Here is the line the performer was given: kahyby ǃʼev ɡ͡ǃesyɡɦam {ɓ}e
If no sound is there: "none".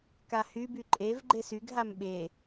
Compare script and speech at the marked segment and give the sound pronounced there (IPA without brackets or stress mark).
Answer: ɓ